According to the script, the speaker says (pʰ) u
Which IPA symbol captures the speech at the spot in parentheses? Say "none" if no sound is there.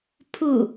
pʰ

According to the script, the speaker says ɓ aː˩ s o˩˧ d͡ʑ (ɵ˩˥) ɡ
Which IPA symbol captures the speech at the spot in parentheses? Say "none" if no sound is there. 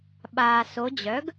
œ˩˥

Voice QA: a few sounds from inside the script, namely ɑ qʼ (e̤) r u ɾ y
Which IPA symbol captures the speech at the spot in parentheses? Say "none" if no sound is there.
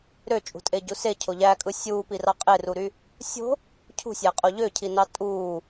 e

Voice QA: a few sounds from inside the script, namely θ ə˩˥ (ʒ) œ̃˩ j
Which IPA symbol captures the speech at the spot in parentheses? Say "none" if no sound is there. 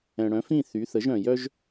ʒ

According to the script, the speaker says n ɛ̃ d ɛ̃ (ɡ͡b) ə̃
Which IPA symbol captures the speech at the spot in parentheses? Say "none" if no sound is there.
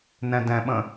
ɓ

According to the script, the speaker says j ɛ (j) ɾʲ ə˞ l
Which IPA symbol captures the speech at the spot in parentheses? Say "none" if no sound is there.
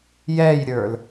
j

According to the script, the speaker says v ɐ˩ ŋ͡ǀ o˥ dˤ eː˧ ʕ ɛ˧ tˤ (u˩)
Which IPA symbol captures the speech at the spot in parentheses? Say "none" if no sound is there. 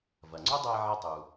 u˩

